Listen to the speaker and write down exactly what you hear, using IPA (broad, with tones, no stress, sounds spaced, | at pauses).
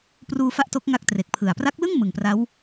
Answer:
p r uː˧ f a˥˩ ʔ t o˦˥ k̚ ŋ a˥˩ k̚ t r e˨˩ k̚ pʰ ɯ˨˩ a̯ p r a˦˥ k̚ l ɯ˥˩ ŋ m ɯ˨˩ ŋ p r a˦˥ w